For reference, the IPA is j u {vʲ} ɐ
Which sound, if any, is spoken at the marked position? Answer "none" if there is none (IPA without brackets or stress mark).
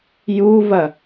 v